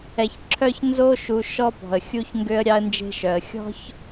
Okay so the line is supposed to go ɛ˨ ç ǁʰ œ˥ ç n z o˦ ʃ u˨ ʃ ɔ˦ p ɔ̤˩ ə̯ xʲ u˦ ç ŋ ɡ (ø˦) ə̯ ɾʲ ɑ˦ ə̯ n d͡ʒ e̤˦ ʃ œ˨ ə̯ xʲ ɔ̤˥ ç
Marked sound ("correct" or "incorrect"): correct